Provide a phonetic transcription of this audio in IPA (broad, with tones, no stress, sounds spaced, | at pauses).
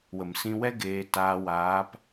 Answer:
w ə˨ m s ĩ˧ w ɛ˦ ɡ eː˧ t aː˧ w aː˨˦ p